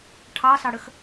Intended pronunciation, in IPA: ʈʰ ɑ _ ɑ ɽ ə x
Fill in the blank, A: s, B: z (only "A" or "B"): A